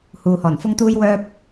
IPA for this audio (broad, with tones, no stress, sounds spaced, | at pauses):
h uː˨ h ɔː˨˩ n f ʊ˥ ŋ t̪ uː˥ j w œː˥ p̚